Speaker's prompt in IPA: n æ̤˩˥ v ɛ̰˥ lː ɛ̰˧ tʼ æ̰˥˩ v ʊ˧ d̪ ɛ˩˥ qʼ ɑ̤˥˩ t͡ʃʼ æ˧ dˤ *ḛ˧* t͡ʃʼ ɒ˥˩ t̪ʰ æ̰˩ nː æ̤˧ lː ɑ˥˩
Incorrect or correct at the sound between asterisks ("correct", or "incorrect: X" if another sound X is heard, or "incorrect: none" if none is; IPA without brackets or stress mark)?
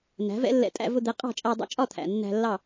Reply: incorrect: ɛ̰˧